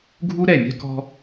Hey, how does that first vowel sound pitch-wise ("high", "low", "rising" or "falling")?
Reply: high